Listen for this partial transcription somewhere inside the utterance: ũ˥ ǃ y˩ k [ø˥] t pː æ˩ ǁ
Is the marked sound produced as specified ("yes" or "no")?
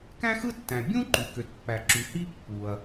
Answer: no